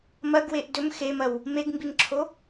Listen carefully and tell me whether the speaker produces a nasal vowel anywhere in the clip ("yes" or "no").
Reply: no